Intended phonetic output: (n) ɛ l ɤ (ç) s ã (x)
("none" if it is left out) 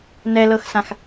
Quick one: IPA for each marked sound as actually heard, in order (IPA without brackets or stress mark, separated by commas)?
n, x, x